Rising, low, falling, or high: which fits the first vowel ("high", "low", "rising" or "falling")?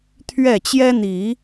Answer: falling